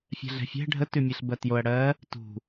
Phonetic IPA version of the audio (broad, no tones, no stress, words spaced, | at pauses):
fʲɛ̤ɮɛ̤fʲɛ̤ ɖʱətʉ mʲɛɬbɜtjoɐ̯ ɽɜ | tṳ